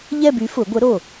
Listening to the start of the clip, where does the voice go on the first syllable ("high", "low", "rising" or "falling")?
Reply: falling